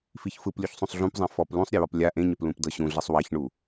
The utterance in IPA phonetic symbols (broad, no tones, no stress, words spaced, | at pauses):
fiçfɯplʲuç sˤũsˤɮũpzˤɛ̃ fɔp lũsˤɾʲewɔp lʲa ʔẽɲɛp lũpdɤɕũɮisˤ waçɳu